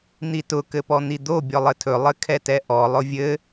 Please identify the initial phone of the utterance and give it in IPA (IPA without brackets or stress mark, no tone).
n̪